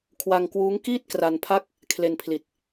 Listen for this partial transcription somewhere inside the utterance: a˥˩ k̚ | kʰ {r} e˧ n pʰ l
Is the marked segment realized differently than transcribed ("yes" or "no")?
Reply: yes